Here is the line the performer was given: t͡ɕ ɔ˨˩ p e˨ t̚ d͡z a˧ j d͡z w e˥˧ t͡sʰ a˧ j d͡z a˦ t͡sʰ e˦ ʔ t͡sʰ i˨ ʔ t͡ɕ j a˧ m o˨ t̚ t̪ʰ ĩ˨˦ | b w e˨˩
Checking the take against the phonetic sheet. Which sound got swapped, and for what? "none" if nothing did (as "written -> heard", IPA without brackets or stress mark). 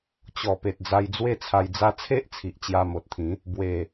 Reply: none